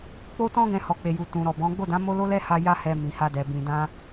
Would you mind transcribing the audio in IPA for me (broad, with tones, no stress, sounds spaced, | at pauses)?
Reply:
k͡p o˦ t ɔ̃˦ ɡ ɛ̃˧ h ɔ˨ k͡p e˨ j u˨ t ũ˨ ɾ ɔ˨ b ɔ̃˨˦ ɡ͡b o˦˨ d ã˨˦ m o˦ l o˦ l ɛ˦ h a˧ j a˦ h ɛ˧ m ĩ˨ h a˧ d ɛ˨ b ĩ˨ d ã˧